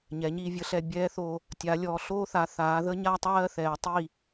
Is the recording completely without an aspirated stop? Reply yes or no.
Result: yes